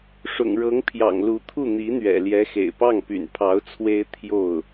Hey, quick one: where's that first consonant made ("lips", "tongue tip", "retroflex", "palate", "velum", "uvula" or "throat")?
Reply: retroflex